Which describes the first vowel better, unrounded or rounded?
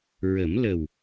unrounded